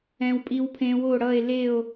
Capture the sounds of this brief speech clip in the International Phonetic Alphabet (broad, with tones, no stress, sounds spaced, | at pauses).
ɛ̃˦˥ w pʼ i˦˥ w pʰ ẽ˦˥ w o˥˧ ɽ ʌ˥˧ e̯ l e˥˧ o̯